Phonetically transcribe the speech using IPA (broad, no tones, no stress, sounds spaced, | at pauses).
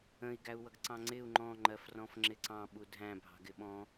ə̃ i̯ ɡ æ u̯ w ʌ ɡ ǀ ɑ̃ ŋ͡ǀ ɪ u̯ ŋ͡ǃ ɔ̃ ŋ͡ǃ ɜ f r ɔ̃ f ŋ͡ǁ ɪ ǀ ɑ̃ ɓ u dʱ æ̃ bʱ ɑ̤ ɡ ɪ ɓ ɔ̃